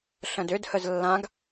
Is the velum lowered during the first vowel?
yes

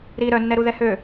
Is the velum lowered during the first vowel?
no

